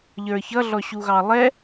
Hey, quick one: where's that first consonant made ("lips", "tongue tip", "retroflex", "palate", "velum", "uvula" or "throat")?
palate